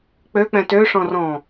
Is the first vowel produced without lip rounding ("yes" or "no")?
no